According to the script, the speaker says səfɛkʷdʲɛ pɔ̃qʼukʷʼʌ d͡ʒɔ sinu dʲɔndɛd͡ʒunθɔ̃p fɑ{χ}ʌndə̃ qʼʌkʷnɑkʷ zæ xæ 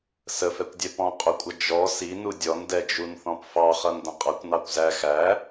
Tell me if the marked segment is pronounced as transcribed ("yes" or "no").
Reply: yes